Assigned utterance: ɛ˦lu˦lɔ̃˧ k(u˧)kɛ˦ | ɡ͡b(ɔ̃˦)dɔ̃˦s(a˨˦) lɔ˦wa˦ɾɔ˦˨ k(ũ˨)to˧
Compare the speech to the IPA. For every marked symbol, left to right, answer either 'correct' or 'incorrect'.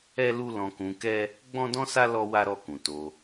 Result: incorrect, correct, incorrect, correct

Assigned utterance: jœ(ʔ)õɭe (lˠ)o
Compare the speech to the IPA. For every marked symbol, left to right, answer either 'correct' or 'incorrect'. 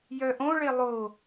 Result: correct, correct

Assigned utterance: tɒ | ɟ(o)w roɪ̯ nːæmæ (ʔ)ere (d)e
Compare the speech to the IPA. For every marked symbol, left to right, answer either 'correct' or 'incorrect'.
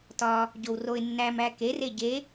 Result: correct, incorrect, incorrect

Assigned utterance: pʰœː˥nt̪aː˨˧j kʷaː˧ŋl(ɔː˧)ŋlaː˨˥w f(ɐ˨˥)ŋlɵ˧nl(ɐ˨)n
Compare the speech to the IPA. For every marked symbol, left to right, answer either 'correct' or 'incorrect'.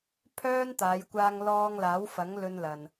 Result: correct, correct, correct

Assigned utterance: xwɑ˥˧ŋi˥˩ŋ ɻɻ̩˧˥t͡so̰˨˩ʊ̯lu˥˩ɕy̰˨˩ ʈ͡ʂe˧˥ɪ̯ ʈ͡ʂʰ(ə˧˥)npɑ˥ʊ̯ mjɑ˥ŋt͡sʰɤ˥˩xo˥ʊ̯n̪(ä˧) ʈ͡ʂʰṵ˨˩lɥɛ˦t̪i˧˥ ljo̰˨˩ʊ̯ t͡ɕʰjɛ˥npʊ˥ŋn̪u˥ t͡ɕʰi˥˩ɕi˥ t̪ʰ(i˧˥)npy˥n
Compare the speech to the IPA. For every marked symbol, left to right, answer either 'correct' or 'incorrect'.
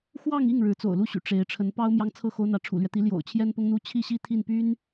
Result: correct, incorrect, incorrect

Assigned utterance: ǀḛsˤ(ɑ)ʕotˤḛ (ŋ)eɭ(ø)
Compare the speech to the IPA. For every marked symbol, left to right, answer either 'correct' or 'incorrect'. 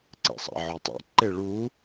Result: incorrect, incorrect, incorrect

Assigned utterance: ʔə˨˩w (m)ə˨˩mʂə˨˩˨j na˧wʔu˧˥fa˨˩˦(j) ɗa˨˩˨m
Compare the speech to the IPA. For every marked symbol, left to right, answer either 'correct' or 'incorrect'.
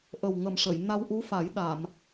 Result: incorrect, correct

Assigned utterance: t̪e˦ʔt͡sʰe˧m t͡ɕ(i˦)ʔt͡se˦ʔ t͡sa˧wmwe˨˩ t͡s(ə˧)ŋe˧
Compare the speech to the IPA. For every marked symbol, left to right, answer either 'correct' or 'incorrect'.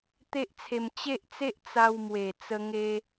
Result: incorrect, correct

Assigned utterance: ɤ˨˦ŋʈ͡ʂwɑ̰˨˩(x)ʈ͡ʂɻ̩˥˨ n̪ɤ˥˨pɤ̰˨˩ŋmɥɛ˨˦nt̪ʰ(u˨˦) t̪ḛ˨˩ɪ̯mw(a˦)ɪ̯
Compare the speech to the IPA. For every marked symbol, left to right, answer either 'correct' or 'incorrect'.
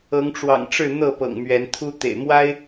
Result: incorrect, incorrect, correct

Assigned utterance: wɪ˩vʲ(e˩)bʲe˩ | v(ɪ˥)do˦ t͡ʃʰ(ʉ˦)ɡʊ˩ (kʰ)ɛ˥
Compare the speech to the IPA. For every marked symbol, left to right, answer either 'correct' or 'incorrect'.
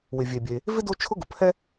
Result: correct, correct, incorrect, incorrect

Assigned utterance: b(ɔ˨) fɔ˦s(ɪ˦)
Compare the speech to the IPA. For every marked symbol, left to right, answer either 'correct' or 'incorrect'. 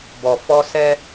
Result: correct, incorrect

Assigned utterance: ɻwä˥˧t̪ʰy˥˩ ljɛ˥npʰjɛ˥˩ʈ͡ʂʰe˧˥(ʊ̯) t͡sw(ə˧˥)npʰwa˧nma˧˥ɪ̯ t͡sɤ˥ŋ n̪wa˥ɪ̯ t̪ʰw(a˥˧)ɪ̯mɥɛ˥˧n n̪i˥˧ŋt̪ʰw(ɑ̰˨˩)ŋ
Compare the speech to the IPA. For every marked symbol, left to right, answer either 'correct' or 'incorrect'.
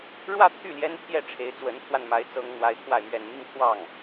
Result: incorrect, correct, correct, incorrect

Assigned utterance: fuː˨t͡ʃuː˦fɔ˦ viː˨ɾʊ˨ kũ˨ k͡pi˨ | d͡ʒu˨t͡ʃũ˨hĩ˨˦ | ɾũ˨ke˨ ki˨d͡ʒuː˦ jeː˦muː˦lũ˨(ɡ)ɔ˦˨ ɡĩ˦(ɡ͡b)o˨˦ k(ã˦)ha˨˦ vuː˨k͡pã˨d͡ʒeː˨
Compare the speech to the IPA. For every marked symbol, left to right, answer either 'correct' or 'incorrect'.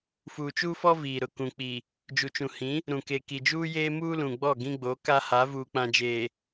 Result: incorrect, correct, incorrect

